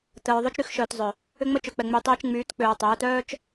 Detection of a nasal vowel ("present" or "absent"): absent